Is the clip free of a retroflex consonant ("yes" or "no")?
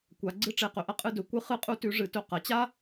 no